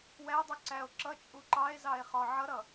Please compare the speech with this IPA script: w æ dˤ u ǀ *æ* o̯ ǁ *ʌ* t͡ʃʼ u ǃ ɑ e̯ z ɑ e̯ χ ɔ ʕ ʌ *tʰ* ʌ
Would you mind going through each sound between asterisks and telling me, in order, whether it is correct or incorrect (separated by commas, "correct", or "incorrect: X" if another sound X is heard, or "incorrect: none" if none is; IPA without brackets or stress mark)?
correct, correct, incorrect: ɾ